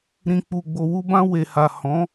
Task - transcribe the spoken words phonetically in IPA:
ɾ ĩ˨ k͡p u˨ ɡ͡b o˨ w u˧ b ã˧ w e˨ h a˨ h ɔ̃˨˦

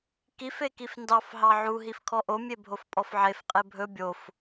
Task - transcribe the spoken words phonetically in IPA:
k i f e k i f n d ɑ f ɦ ɑ ʕ u ɦ i f kʰ ɔ ʔ o mʲ e bʱ o f pʼ ɔ f ʕ e f qʼ e bʱ ɵ bʲ o f

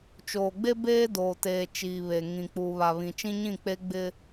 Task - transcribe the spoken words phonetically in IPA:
t͡ʃ oː˨ ɡ͡b e˦ b eː˦ d oː˨ t eː˨ t͡ʃ iː˨ β e˨ ŋ ĩ˨ k͡p uː˨ β a˨ β ĩ˨ t͡ʃ ĩ˦ ɲ ĩ˦˨ k͡p e˦ ɡ͡b ɪ˦

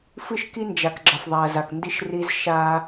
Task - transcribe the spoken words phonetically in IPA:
f ɨ˦ ʃ k i˦ n d͡ʒ a˨ k ɡ͡ǁ ɐ˨ f ðˤ a˨ ɐ̯ z a˨ k n d i˦ ʃ r i˦ z ʃ a˦

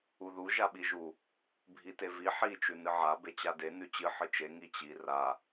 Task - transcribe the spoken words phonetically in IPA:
u ð u ʒ a ɓ i ʒ u | bʱ i t e v i ħ i t͡ʃ ʉ n ɨ ʕ a b e t͡ɕ a d e n ʉ t͡ɕ ɨ ħ ɨ t͡ʃ e ŋ i t͡ɕ i r a

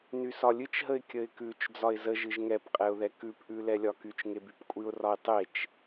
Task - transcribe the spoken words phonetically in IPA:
n y s ɒ lʲ ɨ t͡ʃ ɦ ə ɪ̯ kʲ ə ɪ̯ k ʉ t͡ʃ d͡z ɒ ɪ̯ z ə ʒ ɨ ʒ ŋ ɛ p qʼ ɛ ʊ̯ ð ɛ k ʉ p ʔ ʉ l ɛ lʲ ɒ k y t͡ʃ ŋ e b y p kʷʼ ɨ ʊ̯ r ɒ ɪ̯ tˤ e t͡ʃ

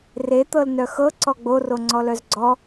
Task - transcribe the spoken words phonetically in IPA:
r e t̪ ɤ l n œ x ɤ ǀ ɔ ɡ͡b o r o ŋ͡ǀ ɔ l œ z ɡ͡ǀ ɔ

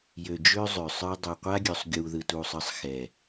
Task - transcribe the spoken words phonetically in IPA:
j ø˨ d͡ʒ ø˦ zˤ ø˨ sˤ ə˞˦ dˤ ø˨ qʷ a˦ ɡʲ ø˨ sˤ ɡʲ uː˨ ð ɯ˨ t uː˨ sˤ ɯ˨ sˤ x ɛ˨

